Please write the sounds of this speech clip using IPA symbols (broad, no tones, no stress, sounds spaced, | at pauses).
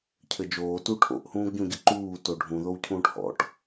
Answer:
cʰ ɘ d͡ʒ oː t u ʈʰ o̰ ʔ h ũː ɡ ɟ ũ ɟ ɘ ǃ uː t o ɖʱ ũ ð o w cʰ ũː ʈ h ɔ̰ ʈ